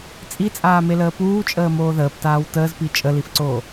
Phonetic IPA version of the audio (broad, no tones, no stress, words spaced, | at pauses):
t͡sʼit͡sʼaːmeləː puːt͡ʃʼəːmoː ðəːptaːw təːzpi t͡ʃʼəlifǀoː